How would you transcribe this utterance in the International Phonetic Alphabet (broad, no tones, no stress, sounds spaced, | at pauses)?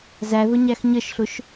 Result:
z æ ð ʊ ɲ æ x ɲ ə ʃ ɬ ʊ ʃ